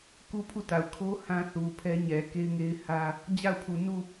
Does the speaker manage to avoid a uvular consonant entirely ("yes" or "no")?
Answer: yes